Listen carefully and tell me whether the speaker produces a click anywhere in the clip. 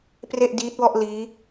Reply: no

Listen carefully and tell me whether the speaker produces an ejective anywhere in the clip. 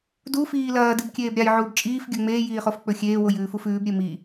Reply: yes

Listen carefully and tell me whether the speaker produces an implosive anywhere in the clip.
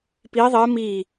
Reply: no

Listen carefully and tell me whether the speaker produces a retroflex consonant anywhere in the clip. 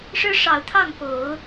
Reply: yes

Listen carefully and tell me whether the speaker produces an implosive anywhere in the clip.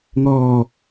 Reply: no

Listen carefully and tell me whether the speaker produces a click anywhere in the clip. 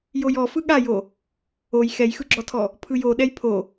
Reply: yes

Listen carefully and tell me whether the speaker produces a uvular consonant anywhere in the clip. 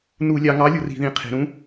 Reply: yes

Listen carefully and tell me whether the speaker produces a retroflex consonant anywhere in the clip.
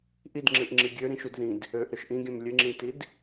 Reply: no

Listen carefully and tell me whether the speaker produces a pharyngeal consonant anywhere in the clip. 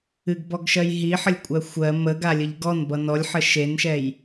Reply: yes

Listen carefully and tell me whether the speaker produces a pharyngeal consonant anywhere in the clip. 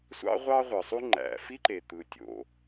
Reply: no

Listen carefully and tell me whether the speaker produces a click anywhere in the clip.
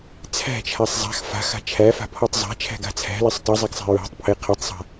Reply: no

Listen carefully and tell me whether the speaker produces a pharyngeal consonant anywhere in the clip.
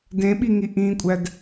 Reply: no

